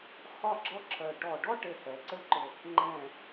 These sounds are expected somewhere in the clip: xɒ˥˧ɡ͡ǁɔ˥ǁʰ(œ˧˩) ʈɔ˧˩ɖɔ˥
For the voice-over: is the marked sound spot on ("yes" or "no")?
yes